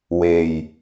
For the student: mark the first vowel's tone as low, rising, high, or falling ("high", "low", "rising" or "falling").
low